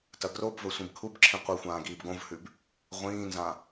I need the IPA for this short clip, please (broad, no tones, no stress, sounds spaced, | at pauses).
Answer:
t ɐ ɡ r o b v ɵ sʷ ĩ b kʰ u b ǁʰ ĩ qʷ ɨ xʷ ãː ɡ iː b ɡ õ v h ʉ b | ʁʷ ĩː n z ã